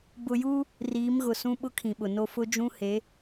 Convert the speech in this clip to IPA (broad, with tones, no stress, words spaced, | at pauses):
bʊ˨juː˦ | riː˨˦mɣʊ˨sũ˦ ɓʊ˦ kʰĩ˨ɓʊ˨no˦ fʊ˦d͡ʒũ˦he˨˦